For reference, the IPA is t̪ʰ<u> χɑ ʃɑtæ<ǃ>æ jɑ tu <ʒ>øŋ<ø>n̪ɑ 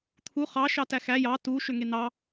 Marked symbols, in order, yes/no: yes, no, no, no

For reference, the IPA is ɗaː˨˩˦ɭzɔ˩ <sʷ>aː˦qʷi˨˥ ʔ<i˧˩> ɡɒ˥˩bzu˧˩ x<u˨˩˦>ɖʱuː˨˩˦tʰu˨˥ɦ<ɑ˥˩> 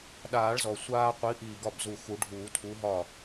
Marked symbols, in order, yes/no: yes, yes, yes, no

